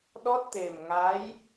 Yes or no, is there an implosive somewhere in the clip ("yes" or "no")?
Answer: yes